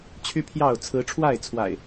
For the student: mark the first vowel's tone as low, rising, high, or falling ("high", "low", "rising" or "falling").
high